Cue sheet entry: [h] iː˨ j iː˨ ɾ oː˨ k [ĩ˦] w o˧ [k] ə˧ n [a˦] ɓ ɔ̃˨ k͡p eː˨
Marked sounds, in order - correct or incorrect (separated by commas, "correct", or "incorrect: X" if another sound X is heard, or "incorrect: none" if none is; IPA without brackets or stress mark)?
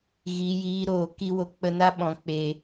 incorrect: ɣ, incorrect: i˦, incorrect: k͡p, correct